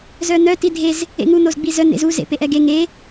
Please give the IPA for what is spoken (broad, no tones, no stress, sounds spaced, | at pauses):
z œ n̪ œ t i dʱ e z | ḛ ŋ u n̪ o z ɡ͡b i z œ n̪ ḛ z u z ḛ p e ʔ ɛ ɡ e ŋ e